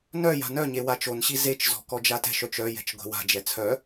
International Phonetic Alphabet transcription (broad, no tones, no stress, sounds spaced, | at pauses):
n œ j a̤ n œ ɲ e w a t͡ʃ o n ɕ i z e t͡ʃ z ɔ̤ k ɔ d͡ʒ a t ɛ̤ ʃ œ t͡ʃ œ j ɛ̤ t͡ʃ ɡʷ ɛ̤ w a̤ d͡ʒ ɛ t͡sʰ œ